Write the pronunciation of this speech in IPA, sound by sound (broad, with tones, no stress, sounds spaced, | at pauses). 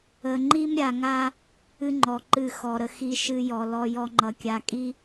ə˨ ŋ͡ǃ i˦ m ɾʲ a˨ ŋ a˦ | ɨ˦ ŋ͡ǃ ɔ˨ ǃ ɨ˦˨ x ɔ˨ ɾ ə˦ x i˦ ʃ ɨ˦ j ɔ˨ l ɔ˦ j ɔ˦ ŋ͡ǃ ʌ˨ kʲ a˨ kʼ i˦